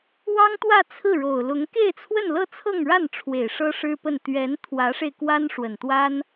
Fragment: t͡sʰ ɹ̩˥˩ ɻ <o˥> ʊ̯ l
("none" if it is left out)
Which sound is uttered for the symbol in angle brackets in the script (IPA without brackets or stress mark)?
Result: o˨˩